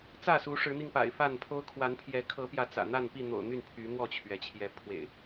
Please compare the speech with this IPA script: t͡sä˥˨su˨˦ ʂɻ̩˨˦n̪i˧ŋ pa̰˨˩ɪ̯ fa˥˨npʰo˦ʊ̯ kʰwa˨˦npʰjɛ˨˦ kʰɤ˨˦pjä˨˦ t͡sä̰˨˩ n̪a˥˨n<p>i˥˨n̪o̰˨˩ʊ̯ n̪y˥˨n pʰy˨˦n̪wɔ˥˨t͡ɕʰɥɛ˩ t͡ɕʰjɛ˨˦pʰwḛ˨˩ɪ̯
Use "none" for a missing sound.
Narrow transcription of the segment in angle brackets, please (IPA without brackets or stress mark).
p